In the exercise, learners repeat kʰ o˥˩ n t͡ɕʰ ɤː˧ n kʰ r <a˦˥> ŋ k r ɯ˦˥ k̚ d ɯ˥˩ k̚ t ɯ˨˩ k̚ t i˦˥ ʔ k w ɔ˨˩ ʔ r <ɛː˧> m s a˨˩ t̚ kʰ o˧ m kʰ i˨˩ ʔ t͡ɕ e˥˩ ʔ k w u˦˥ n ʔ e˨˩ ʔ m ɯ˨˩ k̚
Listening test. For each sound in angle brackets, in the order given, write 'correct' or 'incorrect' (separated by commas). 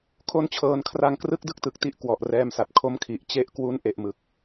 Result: incorrect, correct